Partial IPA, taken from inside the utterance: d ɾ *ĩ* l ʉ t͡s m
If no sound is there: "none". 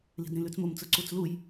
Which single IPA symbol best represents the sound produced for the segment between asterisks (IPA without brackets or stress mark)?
ĩ